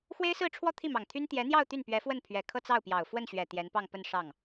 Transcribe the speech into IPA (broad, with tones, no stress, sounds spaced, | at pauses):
x w e˥ ɪ̯ s ɹ̩˥˧ ʈ͡ʂʰ w ɔ˥˧ t̪ʰ i˥˩ m ɑ˨˩ ŋ t̪ʰ y˥ n t̪ j ɛ˧˥ n̪ j ɑ˥˧ ʊ̯ t̪ y˥˩ n p ɥ ɛ˧˥ f w ə˥˩ n pʰ ɥ ɛ˨˩ kʰ ɤ˥˧ t͡s ɑ˥˩ ʊ̯ p j ɑ˨˩ ʊ̯ f w ə˥˩ n ɕ ɥ ɛ˨˩ t̪ j ɛ˧˥ n p ɑ˥˧ ŋ p ə˥˧ n ʂ ɑ˥˩ ŋ